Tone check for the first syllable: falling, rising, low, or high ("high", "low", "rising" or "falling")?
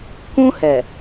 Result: high